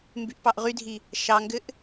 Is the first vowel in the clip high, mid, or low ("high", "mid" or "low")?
high